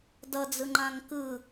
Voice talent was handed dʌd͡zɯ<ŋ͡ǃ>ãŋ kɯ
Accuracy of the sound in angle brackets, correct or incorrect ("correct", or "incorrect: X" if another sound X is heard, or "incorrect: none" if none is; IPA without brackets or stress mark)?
correct